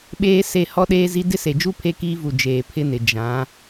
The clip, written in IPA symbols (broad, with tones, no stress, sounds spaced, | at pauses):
ɓ eː˦ s e˦˨ h ɔ˦ ɗ eː˦ z i˦ d ɪ˦ s e˨ d͡ʒ u˦ pʰ e˦ k iː˦ v u˨ d͡ʒ eː˨ pʰ ɪ˦ n ɪ˨ d͡ʒ ã˨˦